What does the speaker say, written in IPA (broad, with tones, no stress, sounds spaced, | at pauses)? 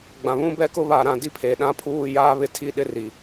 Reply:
ɡ͡b ã˨ β ũ˦ b ɛ˦ k ʊ˦ β a˦˨ ɾ ã˦˨ d i˦ pʰ e˨ ɗ ã˦ pʰ uː˦˨ j aː˦ β ɪ˦ tʰ i˦ ɗ ɪ˦ r i˨